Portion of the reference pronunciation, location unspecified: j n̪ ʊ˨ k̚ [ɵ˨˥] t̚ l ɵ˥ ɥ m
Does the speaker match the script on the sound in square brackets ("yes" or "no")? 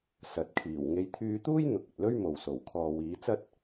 no